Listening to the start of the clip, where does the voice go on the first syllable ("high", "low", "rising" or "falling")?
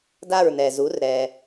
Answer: falling